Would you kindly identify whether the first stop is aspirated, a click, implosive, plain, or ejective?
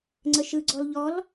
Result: click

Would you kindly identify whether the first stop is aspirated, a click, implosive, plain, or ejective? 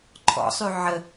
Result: click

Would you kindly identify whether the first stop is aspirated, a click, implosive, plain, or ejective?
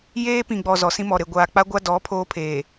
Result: plain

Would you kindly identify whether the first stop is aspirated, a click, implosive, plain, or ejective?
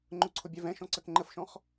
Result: click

